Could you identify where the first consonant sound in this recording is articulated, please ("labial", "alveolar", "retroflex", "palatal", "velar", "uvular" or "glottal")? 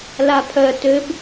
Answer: alveolar